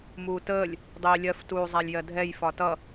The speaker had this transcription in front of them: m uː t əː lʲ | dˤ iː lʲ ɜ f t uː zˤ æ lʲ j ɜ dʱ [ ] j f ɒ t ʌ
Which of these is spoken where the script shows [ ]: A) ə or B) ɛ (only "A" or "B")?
B